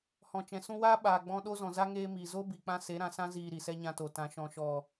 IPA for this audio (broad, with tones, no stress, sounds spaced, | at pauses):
h ɔ̃˨ t͡ʃ ɛ̃˨ s ũ˧ w aː˦ ɓ aː˨ ɡ͡b ɔ̃˧ ɗ o˦ z ɔ̃˨ z a˧ ŋ eː˧ m iː˨ z o˦ b i˨ k͡p ã˧ s e˨˦ ɾ ã˨ s ã˦ z iː˨ ɾ i˨ s ɛ˦ ɲ ã˧ t o˨ t ã˨ ʃ ɔ̃˨ ʃ ɔ˨